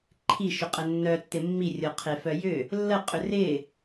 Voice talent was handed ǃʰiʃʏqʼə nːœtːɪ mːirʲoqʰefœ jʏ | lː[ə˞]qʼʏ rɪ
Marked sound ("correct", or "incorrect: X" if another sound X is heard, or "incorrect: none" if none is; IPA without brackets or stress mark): incorrect: ə